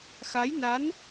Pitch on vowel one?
rising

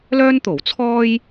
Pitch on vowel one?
high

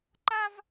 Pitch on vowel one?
high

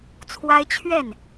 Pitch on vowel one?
high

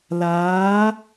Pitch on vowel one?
rising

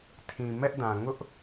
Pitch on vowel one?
low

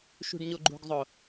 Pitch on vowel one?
low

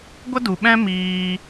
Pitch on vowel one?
high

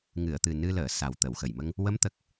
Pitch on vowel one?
low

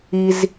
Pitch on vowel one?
high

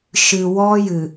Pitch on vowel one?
low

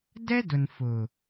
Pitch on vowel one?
high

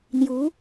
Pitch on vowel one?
rising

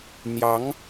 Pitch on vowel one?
rising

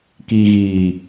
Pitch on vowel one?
low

